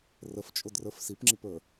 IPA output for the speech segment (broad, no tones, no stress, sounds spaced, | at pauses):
r ə f t͡ʃʼ ʊ d r ə˞ f s i p ŋ͡ǁ i p ə˞